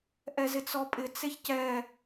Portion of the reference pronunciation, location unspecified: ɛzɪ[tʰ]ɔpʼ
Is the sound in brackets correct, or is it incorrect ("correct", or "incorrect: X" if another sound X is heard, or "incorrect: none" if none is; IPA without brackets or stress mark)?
incorrect: t͡s